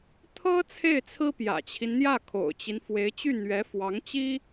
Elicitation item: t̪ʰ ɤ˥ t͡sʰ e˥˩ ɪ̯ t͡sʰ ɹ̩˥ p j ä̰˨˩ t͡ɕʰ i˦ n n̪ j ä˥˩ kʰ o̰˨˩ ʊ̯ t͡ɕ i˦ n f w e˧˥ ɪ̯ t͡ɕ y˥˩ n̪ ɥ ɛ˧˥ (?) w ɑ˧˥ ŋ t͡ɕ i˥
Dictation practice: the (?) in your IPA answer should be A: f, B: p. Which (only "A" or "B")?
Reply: A